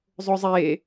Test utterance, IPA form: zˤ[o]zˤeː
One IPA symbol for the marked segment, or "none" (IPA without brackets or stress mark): o